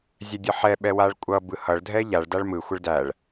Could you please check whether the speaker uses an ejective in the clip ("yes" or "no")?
yes